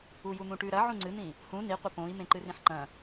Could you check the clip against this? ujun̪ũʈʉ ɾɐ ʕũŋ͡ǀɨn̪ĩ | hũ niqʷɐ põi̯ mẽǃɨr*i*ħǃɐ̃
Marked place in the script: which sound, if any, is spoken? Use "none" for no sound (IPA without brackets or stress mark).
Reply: ĩ